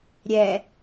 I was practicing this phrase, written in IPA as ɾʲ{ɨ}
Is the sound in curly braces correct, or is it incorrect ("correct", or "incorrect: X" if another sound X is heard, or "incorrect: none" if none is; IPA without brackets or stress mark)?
incorrect: ɛ